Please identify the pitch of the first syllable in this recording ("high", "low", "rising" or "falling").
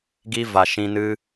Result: high